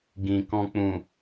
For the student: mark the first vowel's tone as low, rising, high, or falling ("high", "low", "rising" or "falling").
low